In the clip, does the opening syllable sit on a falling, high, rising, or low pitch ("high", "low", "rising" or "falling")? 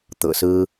low